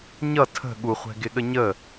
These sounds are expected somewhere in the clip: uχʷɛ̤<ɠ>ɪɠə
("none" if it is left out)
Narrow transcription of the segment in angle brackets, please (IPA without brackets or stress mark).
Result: ɡ